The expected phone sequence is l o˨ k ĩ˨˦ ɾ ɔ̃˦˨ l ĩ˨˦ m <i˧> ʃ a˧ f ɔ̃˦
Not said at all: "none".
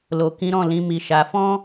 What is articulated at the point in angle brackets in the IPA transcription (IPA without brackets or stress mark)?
i˧